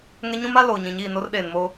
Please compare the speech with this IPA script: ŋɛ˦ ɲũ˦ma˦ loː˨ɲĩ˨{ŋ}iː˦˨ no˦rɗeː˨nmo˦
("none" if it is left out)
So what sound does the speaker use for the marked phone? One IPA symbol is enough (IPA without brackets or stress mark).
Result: ɲ